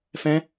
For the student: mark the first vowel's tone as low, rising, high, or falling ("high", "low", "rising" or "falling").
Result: high